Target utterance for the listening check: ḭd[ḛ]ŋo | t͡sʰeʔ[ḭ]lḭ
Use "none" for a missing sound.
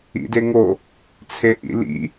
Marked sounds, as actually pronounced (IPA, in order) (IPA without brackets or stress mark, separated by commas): e, ḭ